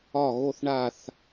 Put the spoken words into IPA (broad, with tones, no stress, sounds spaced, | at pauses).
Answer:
ɒ˦˨ ɣ o˦˨ θ ɳ a˦˨ θ